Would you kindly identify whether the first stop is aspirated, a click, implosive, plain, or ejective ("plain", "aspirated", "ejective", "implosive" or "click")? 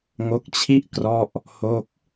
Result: plain